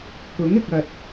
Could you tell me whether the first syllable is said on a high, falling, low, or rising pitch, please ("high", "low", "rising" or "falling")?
rising